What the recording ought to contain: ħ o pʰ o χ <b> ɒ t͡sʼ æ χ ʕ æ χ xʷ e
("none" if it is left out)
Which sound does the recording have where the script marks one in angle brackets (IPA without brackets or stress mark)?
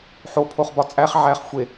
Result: b